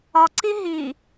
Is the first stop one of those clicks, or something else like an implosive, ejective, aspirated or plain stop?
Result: click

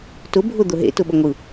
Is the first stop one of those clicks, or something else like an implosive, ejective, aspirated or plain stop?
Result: plain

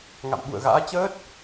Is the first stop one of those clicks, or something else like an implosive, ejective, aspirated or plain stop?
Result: implosive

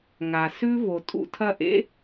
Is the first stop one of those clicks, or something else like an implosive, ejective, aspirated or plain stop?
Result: ejective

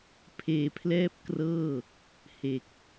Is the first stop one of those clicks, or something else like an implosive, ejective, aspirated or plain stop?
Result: aspirated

